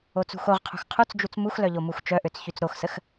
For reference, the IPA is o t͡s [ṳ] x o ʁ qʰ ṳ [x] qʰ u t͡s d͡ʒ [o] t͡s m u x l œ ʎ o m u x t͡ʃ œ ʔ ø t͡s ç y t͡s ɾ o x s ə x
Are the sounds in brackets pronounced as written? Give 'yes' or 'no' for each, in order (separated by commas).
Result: yes, yes, no